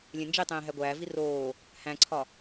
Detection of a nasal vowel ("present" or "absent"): present